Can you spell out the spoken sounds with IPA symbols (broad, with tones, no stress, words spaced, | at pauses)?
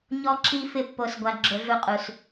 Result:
ɲɔ˦ǁi˦ fɪ˦pːo˧sɡʷa˧ ɡ͡ǁʊ˧ɮu˧qʼu˨s